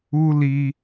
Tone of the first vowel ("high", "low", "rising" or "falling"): high